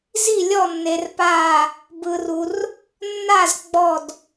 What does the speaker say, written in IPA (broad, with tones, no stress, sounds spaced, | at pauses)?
z i˥˨ lʲ ɔ˥˨ nː e˨ r p aː˥˨ | b ɯ˨ r u˨ r | nː a˥˨ z ɡ͡b ɔ˥˨ d